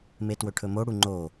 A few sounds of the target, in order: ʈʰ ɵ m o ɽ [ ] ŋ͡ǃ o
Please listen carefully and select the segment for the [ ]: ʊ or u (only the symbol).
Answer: u